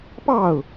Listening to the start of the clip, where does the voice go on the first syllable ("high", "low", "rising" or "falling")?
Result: falling